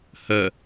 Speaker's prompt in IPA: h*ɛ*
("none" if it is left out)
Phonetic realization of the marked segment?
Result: œ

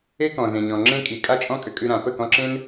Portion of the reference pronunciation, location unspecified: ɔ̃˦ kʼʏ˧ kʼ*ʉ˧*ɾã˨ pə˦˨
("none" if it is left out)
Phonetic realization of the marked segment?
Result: ʉ˧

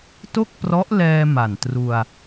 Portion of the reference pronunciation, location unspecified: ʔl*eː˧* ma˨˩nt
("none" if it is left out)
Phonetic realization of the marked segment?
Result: ɛː˧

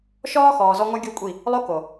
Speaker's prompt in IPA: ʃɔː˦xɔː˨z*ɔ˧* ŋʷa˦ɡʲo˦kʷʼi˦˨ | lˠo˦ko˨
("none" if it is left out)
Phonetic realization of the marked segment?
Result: ɔ˧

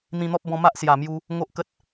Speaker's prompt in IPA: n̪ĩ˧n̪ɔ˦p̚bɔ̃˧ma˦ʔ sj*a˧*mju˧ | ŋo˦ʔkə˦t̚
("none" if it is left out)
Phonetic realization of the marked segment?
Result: a˨˩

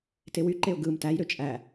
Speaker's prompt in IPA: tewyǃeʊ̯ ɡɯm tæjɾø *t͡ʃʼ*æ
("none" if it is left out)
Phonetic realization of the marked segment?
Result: t͡ʃʼ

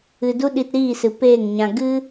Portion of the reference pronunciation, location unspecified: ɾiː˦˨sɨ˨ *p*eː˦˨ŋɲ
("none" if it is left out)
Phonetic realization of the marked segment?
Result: p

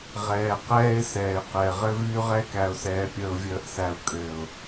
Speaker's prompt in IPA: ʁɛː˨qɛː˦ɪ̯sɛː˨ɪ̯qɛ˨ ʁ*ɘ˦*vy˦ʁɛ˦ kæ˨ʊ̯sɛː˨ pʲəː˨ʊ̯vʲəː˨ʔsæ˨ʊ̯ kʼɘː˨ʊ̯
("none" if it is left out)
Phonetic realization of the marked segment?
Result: ɘ˦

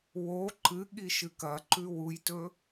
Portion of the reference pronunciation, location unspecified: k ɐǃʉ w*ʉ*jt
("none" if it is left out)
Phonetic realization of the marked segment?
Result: u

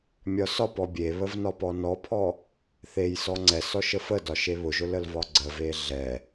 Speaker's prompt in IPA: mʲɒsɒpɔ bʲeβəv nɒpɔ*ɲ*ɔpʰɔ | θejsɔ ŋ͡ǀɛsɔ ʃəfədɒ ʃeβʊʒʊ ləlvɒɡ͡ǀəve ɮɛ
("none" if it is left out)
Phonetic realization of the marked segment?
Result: n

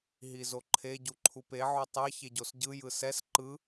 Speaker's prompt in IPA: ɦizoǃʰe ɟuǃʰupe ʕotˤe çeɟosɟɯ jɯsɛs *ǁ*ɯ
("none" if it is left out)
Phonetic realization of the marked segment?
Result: ǃ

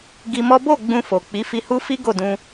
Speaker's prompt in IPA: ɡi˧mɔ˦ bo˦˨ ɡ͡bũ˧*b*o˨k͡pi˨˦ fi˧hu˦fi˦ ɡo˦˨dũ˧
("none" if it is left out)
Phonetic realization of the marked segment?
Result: f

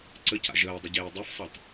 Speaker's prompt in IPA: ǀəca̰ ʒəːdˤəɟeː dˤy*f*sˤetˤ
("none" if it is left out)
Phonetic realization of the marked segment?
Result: f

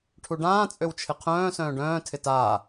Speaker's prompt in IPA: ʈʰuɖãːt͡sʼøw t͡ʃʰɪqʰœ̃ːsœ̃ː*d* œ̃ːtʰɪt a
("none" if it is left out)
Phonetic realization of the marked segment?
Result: ɖ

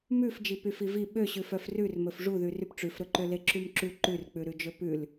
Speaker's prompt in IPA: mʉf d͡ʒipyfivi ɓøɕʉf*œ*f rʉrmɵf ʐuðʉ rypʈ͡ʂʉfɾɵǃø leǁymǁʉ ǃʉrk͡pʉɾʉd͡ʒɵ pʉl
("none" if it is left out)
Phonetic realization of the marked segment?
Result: œ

